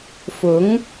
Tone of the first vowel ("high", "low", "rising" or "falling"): rising